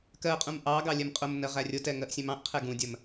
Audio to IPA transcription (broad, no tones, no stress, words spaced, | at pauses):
kɜqʼũm ʔɑɡɑ lʲɛmqʼʊmnɜ ʁærʲʊtɛ ŋɜʔsʲɛ̃mɑ̃ʔqʰɛ ɡũdʲɜm